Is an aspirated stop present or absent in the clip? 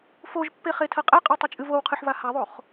present